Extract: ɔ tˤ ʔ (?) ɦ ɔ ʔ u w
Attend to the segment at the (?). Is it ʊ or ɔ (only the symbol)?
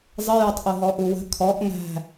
ʊ